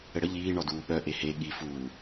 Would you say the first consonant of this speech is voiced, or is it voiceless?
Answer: voiced